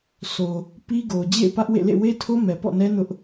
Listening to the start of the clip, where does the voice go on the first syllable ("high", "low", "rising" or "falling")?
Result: low